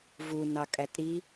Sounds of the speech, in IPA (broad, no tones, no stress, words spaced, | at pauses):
vunɑkʼæt ɾi